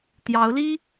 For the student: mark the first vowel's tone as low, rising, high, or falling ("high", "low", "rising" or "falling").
rising